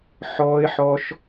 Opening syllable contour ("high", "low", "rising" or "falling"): high